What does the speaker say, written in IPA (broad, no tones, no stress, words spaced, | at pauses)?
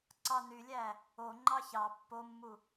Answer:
ǀɑnylʲæ | oŋ͡ǃɑ çɑ pːomːu